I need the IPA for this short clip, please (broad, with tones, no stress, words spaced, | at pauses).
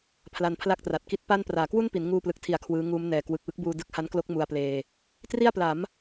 pʰla˧npʰla˥˩k̚tra˨˩t̚ ki˦˥t̚pa˥˩n praː˩˦kwu˥˩npi˩˦n ŋuː˧plɯ˨˩k̚tʰi˨˩a̯ kʰwɯː˦˥ ŋuː˦˥mnɛː˩˦ kwɯ˨˩k̚wɯ˦˥k̚buː˧ dɯ˦˥k̚ha˦˥nklo˦˥k̚ mu˧a̯pleː˧ | tri˥˩a̯pla˩˦m